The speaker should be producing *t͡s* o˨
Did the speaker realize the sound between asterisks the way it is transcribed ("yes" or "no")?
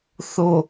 no